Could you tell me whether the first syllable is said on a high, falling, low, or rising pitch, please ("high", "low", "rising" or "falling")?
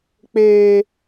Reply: low